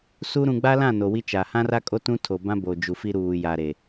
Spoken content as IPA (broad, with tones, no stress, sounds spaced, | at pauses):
s u˦ ɾ ũ˨ ɡ͡b a˦ l ã˦˨ n o˨ w i˦ t͡ʃ a˨ h ã˦ r a˦ kʼ o˦ t ũ˦ tʰ o˨ b ã˦ b o˨ d͡ʒ u˨ f i˦ ɾ uː˨ j a˨ ɾ e˨